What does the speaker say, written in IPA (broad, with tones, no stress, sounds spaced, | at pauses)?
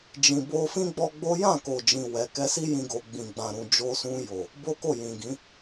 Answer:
d͡ʒ ĩ˧ b o˦ f ĩ˦ ɡ͡b ɔ˦ ɡ͡b o˦ j ã˦˨ k o˨ d͡ʒ ĩ˨ w ɛ˨ k ɛ˧ s i˦ j ĩ˧ ɡ o˨ ɡ͡b ĩ˨ ɡ͡b ã˨ ɾ ũ˨ d͡ʒ o˧ s ũ˧ j o˨ | b o˦ k o˦˨ j ĩ˨ ɡ ĩ˨˦